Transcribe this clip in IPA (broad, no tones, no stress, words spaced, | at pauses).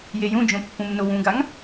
jejũd͡ʒõ pːũmnowũɡaŋ